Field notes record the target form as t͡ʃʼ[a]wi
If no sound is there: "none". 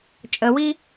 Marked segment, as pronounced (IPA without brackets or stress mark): ə